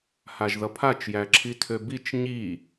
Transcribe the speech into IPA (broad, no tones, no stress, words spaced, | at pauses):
haʒðʌpʰat͡ʃ jæǁʰitʰøbit͡ʃ ɲi